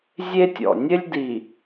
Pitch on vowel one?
high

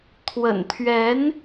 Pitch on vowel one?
low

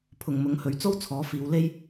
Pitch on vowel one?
low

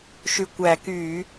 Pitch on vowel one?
low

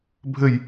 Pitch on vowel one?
falling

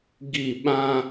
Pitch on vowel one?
falling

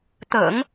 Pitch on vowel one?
low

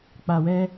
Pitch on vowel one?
low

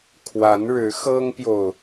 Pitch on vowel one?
rising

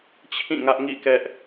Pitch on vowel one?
falling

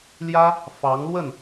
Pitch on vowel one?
high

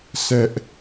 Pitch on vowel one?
high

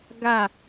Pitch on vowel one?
falling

